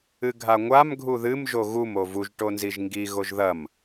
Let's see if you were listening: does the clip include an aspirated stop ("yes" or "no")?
no